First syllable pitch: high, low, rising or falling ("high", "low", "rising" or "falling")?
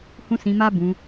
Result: high